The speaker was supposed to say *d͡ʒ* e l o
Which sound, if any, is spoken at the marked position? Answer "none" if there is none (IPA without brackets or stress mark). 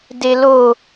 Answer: d